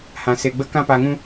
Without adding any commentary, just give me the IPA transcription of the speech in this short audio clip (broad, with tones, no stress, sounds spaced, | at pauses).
h ã˧ s e˧ ɡ͡b ə˦ k ã˦ p a˧ ŋ ũ˦